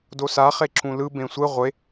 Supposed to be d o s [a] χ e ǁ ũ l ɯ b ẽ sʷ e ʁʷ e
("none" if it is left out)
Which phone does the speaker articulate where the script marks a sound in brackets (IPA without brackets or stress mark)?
a